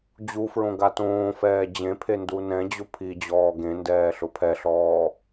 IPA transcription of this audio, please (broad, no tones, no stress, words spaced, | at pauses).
d͡ʑufɹõ ɡatõːfɛː d͡ʑẽpʰe ndunɛ̃d͡ʑʊ pʰi d͡ʑɔːɡẽndɛː ɬʊpʰɛɬɔː